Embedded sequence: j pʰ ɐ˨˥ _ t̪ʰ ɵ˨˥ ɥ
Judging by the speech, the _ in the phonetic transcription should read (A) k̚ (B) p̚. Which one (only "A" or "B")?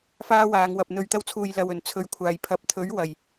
B